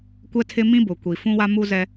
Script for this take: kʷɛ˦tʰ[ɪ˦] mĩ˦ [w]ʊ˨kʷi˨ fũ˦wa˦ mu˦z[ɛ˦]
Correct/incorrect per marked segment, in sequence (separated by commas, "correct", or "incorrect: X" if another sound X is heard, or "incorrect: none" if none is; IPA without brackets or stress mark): correct, incorrect: b, correct